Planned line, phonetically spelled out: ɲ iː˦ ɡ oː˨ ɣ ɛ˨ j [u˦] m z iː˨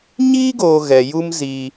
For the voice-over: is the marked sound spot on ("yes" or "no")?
yes